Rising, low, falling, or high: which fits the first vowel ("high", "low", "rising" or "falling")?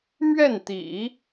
falling